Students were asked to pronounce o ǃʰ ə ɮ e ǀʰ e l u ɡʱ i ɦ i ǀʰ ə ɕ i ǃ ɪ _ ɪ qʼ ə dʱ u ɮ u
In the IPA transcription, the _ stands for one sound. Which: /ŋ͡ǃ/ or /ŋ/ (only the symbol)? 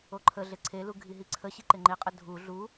ŋ͡ǃ